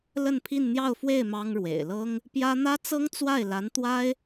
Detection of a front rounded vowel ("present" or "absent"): absent